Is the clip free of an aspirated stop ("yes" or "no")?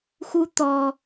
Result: yes